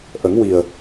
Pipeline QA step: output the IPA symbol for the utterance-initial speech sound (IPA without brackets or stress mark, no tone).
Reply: ʔ